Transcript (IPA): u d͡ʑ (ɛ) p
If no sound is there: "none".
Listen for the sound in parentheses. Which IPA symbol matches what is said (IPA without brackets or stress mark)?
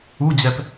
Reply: ɛ